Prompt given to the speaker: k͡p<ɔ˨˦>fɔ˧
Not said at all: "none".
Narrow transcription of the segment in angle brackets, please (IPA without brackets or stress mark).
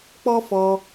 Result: ɔ˦